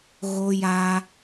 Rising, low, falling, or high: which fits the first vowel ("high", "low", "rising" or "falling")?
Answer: high